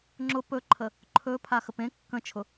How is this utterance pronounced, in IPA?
ŋ͡ǁ ʊ p ɵ ǃʰ ə | ǃʰ ɵ pʰ a x ə p ẽ kː ə̃ t͡ʃʰ ʊ

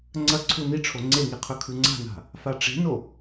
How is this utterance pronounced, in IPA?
ŋ͡ǀ ɐ ǀʰ u n i ʈ͡ʂʰ o ŋ͡ǀ e ŋ i qʰ ɵ kʰ ʉ ŋ͡ǀ a̤ n a̤ | f a ʈ͡ʂ e̤ n o

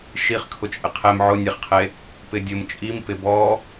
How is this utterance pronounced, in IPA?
ʃ i χ kʰ ʊ t͡ʃʼ ɪ qʰ e m ʕ ʊ nʲ e χ qʰ e | p ɪ dʲ ʊ m t͡ʃʼ i m p ɪ b ɔ

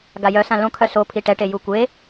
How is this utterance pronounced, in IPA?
ɡ a j œ s ã l õ kʰ œ s o pʰ i ʈ ɛ ʈ e j u kʷ e

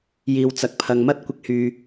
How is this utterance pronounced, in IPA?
j iː˨ w t͡s ɐ˨ k̚ pʰ ɐ˨ ŋ m ɐ˥ t̚ kʷ ɪ˧ k̚ h yː˨

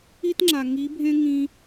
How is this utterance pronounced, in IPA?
i˦ t ŋ͡ǁ a˨ ŋ i˨˦ bʱ ẽ˦ ŋ ĩ˧

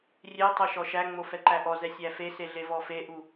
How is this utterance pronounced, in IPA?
rʲ e tˤ o ʃ ɔ ʃ æ ŋ͡m o f ɛ ǃ æ ʔ ɔ z ɛ sʲ æ f e s e ɮ e v ɔ f e ʔ u

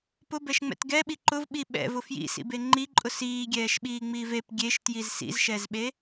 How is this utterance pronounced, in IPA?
p ʊ b ɛ ʃ ŋ͡m ɛ̰ t ɡ ɛ ɓ i ǃ ʊ v ɓ i ɓ ɛ̰ v ʊ f j ḭ s ḭ b e ŋ͡ǃ i ǃʼ ʊ s iː ɡʲ ɛː ʃ ɓ iː ŋ͡m iː v e p ɡʲ e ʃ t j i z s ḭ z ʃ ɛ z ɓ e

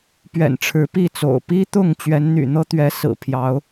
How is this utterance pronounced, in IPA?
p ɥ ɛ̰˨˩ n ʈ͡ʂʰ ɻ̩˨˦ p i˥˨ t͡s o̰˨˩ ʊ̯ p i˦ t̪ ʊ˥˨ ŋ t͡ɕ ɥ ɛ˨˦ n n̪ y̰˨˩ n̪ ɤ˦ t̪ ɥ ɛ˨˦ s ɹ̩˨˩ pʰ j ɑ˨˦ ʊ̯

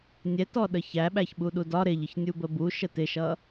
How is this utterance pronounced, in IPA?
nʲ ɛ t ɔ ɗ ə ç æ ɓ æ ç ɓ u ɗ u d ɒ ɾ ɪ ʎ ə ç nʲ u b ə b u ʃ ə t ɪ ʃ ʌ

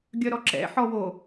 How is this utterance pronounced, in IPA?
ɡʲ œ ɾ ɔ ǁ ɛ̰ ħ ɔ w o

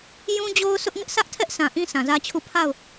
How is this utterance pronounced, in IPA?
j ũ˦ d͡ʑ o˦ ʊ̯ sʰ ʊ˦ ʔ ŋ ɪ˦ ʔ s ä˦ ʔ tʰ ɛ˦ ʔ sʰ ã˨ ʔ ĩ˦ sʰ ã˨ z ä˦ t͡ɕʰ u˦˨ pʰ a˦˨ ʊ̯

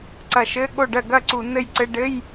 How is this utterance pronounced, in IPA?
ǀ ɐ˧˩ ʃ ɘ˧˥˧ ɠ o˥˩ ɖ ɜ˥˩ ɡ ɐ˥˩ ǀ u˧˩˧ n ɘ˥˩ j ǀ ɘ˧˥˧ ɖ ɘ˧˥˧ j

